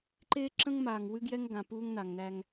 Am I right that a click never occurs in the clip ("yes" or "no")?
no